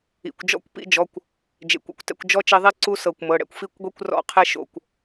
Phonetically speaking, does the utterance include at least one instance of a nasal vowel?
no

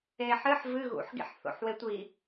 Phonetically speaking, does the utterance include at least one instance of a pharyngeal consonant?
yes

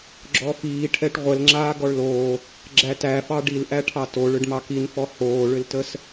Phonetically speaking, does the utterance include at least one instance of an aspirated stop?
yes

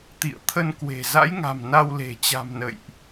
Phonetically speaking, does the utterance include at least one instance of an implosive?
no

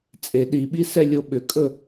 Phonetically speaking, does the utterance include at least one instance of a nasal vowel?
no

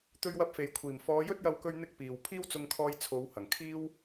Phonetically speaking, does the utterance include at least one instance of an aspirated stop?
yes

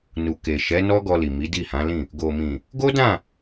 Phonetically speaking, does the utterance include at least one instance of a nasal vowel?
yes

